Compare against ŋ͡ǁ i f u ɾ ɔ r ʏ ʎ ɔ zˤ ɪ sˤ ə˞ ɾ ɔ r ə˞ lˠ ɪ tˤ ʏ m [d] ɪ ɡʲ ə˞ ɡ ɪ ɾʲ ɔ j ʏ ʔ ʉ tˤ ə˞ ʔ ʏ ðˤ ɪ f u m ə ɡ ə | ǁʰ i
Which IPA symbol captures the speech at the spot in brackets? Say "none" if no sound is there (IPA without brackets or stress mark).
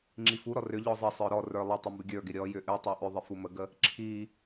b